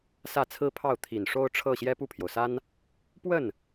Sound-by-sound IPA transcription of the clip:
s ä˥˩ t͡sʰ ɹ̩˥ pʰ ɑ˥˩ ʊ̯ t̪ʰ i˨˩ n ʂ o˥ ʊ̯ ʈ͡ʂʰ ɤ˥˩ ɕ j ɛ˥ p u˥˩ pʰ j o˩ ʊ̯ s a˥ n | p w ə˥˩ n

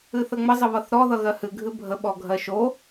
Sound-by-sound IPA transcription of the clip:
ɨ θ ə ŋ͡m ə zˤ ə β ʌ θ ɾ ɔ ð ʌ ɣ ɜ h ɨ ɡʱ ɨ bʱ ə ɓ ɔ ɡʱ ɜ ʃ o

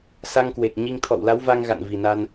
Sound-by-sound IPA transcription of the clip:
s a˧ ŋ k w e˨˩ k̚ ɲ i˧ ŋ t̪ʰ ɔ̰˧˨ w l a˨˦ w v a˧ ŋ ɣ a̰˧˨ n v i˨˩ n a˧ n

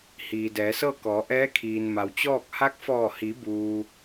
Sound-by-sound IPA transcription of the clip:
h iː˩ d ɛː˩˧ s ɤː˥˨ k ɔː˩˧ ʔ ɛː˧˥ kʰ iː˩ n m a˩ w t͡ɕ ɔː˥˨ k̚ h a˧˥ k̚ f ɔː˧˩ h i˩˧ b uː˩

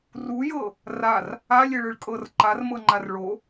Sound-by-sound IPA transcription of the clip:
r u j ɤ | r a r | a lʲ e ɭ ɯ ɭ kʼ ɤ r ǃ a r m ɤ ŋ͡ǃ a r ɭ o

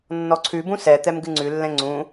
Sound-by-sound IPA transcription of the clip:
nː ɔ ǀʰ ʉ b ũ s ɛ t̪ ɛ m ɡ ɨ ŋ͡ǀ ʉ lː ɛ̃ ŋ͡ǀ ũ

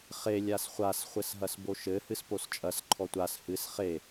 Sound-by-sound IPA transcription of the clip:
χ e lʲ a s χʷ a s χʷ ɘ s ɦ ɐ s b o ʃ ɘ h ɨ s p o s t͡ʃʼ ɐ s ǃʰ ɔ tʷ a s h ɨ s χ e

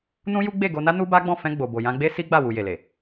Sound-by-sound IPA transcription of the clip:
n ũ˦ j u˦ ɡ͡b e˦˨ ɡ o˧ n a˦ n u˦ b a˦ ɡ͡b ɔ̃˦˨ f ɛ̃˧ ɡ͡b o˨ b o˨ j ã˧ ɡ͡b e˦ s i˦ ɡ͡b a˦˨ w u˨ j e˨ l e˨

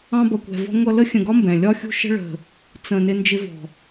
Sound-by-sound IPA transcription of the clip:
ɑ̃˧ b ʌ˨ kʷ ɛ̤˨ v ɔ̤˧ ŋʷ ʌ˧ l ə˦ xʲ ə̃˧ ɡ ɒ˦ m b ɛ̃˨ lʲ ɒ˧ xʲ ṳ˧ ʃ ə̤˧ ɭ ə̤˨ | t͡s ə̃˨ n ɪ˧ n d͡ʒ ɪ˧ v ɔ̤˨

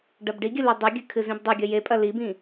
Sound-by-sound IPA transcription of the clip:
ɖ ɐ b ɖ i ɡʲ ɨ l ɵ dˤ ʉ ɡʲ ɨ kʰ ɨ z ĩ b dˤ ɨ ɡʲ ɐ j e pʼ ɐ l i b ĩ

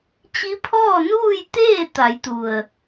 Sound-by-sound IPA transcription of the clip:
t͡ɕ i˧˥ pʰ ɔː˥˨ n uː˥˨ j t̪ eː˥˨ t̪ a˩˧ j t̪ u˩ ə̯

